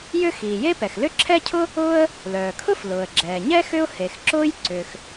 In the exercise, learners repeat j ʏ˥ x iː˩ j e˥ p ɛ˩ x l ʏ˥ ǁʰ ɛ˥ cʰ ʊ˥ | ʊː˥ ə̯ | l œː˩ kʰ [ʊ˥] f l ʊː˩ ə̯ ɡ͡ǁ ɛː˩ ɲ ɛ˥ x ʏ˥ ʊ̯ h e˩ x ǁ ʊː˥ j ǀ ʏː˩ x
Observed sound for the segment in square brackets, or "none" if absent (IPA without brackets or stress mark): ʊ˥